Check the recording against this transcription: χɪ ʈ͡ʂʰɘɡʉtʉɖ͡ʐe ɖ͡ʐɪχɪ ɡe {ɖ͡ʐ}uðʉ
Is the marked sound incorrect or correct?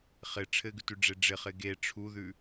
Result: incorrect